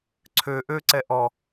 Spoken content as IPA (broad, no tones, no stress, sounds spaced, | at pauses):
ǀʰ ø ʔ ø ǀ ɛ ʔ ɔ